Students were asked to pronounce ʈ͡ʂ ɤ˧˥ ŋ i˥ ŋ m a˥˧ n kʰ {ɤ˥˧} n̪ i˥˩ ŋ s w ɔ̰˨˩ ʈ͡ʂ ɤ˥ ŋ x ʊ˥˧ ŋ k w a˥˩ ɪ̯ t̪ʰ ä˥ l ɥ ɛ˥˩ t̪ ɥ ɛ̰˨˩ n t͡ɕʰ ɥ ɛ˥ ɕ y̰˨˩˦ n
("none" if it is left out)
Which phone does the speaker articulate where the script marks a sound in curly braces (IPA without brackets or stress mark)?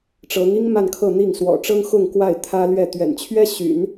ɤ˥˧